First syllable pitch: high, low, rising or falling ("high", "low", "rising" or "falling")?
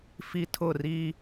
high